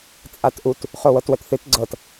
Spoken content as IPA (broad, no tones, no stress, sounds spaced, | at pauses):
t͡sʼ a t ʔ u t | χ o w ɤ t w ə t θ ɨ t ɡ͡ǀ ɤ t